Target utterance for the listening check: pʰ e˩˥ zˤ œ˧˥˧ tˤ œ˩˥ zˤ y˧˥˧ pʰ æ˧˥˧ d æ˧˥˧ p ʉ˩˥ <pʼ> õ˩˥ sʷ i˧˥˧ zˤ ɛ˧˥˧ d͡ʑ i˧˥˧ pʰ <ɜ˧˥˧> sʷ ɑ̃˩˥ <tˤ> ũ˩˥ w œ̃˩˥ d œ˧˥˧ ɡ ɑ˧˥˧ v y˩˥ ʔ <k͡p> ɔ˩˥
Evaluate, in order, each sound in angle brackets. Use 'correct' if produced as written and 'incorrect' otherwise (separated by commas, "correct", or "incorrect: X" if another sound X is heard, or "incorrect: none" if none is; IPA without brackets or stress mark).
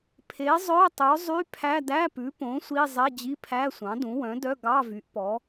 incorrect: p, incorrect: æ˧˥˧, incorrect: d, incorrect: p